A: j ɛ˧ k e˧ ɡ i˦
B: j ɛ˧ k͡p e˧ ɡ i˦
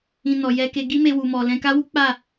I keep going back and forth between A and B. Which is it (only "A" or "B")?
A